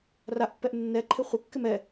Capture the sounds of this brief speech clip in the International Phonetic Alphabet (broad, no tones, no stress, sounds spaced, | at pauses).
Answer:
r a ʔ pː ɛ ʔ nː ɛ ǃʰ ɪ χʷ ɪ kː ɪ m ɛ